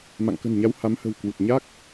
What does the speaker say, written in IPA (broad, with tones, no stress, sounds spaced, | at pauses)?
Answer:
m a̰˧˨ ŋ k ə̤˨˩ n ɲ a˨˦ w h a˨˦ m h ə̤˨˩ w k w u˨˩ t̚ ɲ a˦˥ k̚